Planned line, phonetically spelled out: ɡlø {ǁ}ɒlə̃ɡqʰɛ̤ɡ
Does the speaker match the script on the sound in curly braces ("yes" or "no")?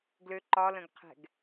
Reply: no